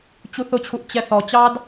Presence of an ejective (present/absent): absent